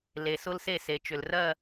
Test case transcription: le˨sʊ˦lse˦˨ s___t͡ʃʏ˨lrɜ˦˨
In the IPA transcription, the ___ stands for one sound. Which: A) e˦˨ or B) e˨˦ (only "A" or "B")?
B